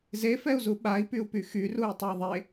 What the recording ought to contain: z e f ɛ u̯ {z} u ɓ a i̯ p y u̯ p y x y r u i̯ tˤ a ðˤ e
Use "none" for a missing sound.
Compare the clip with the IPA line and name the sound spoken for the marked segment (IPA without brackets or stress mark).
z